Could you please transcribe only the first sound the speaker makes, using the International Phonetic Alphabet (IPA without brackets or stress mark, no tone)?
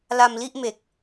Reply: l